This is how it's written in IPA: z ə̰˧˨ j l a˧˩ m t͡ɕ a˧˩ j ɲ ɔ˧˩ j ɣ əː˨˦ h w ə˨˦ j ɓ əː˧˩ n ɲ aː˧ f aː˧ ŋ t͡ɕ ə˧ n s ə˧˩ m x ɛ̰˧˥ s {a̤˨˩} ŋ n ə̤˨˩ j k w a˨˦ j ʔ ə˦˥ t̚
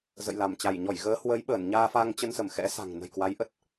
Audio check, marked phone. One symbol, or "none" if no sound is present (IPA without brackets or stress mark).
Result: a̤˨˩